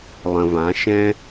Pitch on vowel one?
low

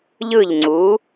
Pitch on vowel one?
falling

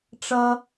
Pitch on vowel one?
high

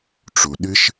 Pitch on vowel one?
low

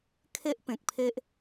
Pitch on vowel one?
high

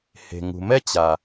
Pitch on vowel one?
low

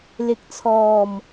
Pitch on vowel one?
rising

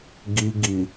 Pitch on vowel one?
low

